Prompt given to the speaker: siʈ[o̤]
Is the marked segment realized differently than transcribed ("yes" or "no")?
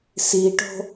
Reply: no